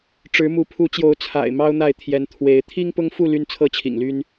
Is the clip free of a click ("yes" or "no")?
yes